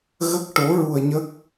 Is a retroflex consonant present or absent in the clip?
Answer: present